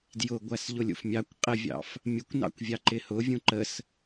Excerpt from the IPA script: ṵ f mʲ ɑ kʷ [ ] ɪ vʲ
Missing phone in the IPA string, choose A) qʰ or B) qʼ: B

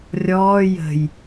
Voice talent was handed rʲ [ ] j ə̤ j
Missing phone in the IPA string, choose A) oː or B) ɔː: B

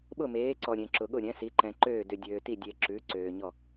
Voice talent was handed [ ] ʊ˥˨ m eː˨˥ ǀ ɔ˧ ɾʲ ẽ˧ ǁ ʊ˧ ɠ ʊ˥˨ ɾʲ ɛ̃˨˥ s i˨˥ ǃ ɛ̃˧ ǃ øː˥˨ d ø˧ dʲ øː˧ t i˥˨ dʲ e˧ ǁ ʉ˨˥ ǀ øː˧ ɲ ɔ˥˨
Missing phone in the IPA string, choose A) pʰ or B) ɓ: B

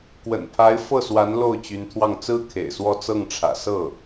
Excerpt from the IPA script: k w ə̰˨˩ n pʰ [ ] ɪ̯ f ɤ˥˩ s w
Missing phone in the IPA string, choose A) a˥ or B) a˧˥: B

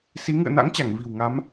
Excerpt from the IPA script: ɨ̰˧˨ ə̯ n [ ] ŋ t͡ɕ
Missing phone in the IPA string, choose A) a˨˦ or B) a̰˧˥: B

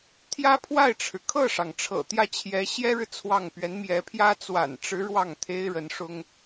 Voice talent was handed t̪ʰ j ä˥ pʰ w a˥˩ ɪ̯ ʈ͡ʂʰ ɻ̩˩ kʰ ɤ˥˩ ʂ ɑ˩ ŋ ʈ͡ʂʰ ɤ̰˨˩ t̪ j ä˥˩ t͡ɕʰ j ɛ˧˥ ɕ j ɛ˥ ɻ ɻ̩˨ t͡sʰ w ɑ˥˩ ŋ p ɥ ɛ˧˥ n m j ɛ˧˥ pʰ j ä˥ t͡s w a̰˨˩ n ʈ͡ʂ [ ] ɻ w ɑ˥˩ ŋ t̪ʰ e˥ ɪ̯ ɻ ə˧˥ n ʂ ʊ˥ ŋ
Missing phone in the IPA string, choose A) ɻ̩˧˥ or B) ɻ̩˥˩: A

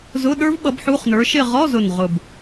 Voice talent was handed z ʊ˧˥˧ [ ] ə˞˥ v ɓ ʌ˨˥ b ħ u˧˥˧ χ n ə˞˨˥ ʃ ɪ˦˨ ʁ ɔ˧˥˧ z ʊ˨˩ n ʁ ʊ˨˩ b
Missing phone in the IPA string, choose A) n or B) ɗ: B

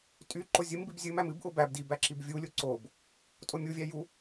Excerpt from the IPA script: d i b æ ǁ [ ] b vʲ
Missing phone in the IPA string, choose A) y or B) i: B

